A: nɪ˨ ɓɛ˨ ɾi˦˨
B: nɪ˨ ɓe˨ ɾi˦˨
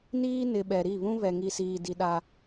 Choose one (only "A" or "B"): A